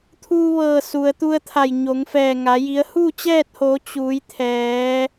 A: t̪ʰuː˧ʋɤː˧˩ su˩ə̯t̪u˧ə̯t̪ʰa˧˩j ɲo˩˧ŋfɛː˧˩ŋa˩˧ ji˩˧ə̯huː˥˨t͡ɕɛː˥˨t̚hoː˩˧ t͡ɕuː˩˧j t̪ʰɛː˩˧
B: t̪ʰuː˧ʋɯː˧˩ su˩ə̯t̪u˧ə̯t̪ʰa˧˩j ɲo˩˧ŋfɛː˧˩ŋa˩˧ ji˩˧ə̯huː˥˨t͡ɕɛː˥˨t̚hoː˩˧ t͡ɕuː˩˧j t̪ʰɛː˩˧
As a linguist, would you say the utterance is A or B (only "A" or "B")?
A